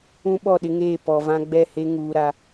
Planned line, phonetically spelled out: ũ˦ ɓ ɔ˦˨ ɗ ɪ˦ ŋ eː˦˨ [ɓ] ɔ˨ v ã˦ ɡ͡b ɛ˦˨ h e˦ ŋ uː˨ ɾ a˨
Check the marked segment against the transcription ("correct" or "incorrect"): incorrect